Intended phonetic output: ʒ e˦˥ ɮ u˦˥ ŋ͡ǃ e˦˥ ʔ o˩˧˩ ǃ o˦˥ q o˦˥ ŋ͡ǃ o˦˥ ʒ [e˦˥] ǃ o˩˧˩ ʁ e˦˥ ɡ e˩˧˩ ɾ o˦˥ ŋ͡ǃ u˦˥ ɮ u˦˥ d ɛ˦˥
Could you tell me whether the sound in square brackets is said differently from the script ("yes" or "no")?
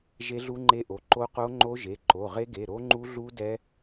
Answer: yes